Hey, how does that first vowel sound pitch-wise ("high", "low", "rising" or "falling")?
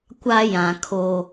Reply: high